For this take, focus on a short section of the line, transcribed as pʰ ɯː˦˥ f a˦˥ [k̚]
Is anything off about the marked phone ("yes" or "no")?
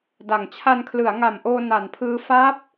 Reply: yes